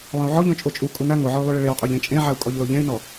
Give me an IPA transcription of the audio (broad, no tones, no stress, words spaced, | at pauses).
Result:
lˠẽu̯ʕɔʎõ t͡ʃʼot͡ʃʼukʼu na ŋoʕɔy̯lˠuɭe ɭewqʼuʎ ẽt͡ʃʼẽʕau̯ kʼɔʎloʎẽy̯nɔ